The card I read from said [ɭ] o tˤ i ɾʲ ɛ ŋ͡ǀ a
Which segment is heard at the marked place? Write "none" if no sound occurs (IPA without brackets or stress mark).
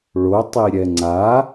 ɭ